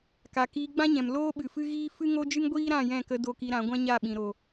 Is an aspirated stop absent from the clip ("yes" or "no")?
yes